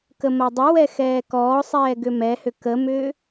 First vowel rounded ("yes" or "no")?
no